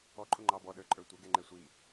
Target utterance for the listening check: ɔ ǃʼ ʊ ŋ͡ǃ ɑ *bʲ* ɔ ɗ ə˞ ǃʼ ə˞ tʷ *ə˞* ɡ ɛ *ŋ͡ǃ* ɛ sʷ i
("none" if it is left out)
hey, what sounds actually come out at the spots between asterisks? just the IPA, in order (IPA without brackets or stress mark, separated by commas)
b, ə, ŋ͡ǃ